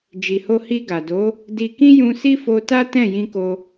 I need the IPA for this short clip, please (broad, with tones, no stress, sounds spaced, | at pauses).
d͡ʒ i˨ h o˧ h i˧ ɡ a˨ d o˨˦ | d i˧ k ĩ˦ j ũ˧ s i˦ f o˧ t a˦ t ɛ̃˦˨ j ĩ˧ k o˧